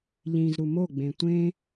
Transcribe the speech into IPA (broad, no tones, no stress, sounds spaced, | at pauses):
ʎ ĩ z ɾ u m o ɡ͡b ẽ tʷ ẽ